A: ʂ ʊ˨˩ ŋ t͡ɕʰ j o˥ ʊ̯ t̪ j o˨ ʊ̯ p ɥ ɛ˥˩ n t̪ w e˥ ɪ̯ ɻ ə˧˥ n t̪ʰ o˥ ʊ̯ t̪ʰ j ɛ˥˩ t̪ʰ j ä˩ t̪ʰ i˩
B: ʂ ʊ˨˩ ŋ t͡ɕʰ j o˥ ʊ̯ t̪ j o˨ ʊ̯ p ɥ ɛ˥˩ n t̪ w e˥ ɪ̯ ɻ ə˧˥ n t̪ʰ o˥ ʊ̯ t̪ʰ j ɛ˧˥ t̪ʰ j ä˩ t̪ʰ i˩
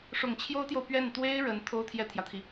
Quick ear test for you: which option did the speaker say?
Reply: A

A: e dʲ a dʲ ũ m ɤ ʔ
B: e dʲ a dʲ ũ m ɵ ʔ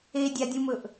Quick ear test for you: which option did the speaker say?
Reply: B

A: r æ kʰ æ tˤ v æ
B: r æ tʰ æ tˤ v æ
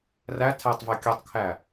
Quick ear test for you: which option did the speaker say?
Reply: B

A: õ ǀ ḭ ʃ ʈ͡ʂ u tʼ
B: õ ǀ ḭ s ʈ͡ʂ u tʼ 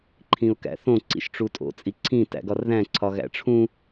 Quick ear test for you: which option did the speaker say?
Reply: A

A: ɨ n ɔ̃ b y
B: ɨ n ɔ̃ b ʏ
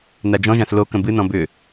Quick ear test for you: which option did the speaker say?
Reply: B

